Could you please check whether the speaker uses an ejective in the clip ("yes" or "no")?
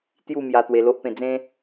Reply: no